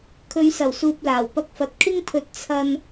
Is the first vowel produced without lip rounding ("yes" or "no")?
no